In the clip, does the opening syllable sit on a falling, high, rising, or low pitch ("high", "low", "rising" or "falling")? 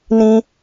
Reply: high